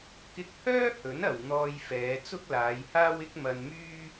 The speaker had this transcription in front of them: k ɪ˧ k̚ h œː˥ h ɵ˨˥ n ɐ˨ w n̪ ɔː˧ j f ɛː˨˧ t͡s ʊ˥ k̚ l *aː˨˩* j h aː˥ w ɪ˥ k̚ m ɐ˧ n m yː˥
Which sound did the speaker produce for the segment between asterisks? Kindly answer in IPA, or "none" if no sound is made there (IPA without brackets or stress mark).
aː˨˧